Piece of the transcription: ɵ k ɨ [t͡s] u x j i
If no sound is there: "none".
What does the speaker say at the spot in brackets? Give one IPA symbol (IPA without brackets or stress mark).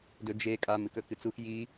t͡s